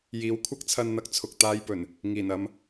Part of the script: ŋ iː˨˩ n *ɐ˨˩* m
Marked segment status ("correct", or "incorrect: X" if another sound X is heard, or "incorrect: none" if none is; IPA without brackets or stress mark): incorrect: ɐ˧